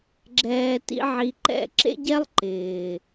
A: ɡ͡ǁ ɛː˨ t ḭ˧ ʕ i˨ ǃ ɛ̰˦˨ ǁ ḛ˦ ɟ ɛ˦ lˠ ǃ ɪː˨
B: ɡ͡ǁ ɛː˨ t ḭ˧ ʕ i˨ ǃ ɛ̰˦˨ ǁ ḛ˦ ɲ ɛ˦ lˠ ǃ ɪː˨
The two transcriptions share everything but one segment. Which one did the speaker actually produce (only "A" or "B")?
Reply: A